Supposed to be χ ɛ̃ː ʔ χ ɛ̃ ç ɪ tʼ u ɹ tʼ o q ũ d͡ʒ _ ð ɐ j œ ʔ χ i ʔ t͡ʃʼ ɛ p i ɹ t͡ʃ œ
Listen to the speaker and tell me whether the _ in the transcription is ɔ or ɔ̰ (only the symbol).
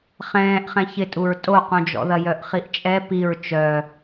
ɔ̰